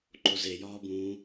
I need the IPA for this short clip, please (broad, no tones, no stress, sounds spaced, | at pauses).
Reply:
ǃ o z e j ɒː b ũː